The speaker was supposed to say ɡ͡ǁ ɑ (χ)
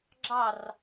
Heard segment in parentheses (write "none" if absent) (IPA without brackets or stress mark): r